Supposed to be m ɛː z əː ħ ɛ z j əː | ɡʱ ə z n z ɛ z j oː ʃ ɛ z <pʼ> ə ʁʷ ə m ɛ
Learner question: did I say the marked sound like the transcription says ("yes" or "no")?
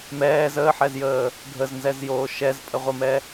yes